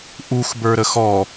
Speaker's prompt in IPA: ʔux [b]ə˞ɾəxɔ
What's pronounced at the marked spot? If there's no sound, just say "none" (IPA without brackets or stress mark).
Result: b